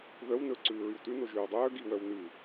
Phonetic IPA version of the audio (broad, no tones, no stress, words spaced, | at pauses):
ðœw nɵǀʉː ɹywtʉ noʒʉːwdˤœː ɡiwœw nʉ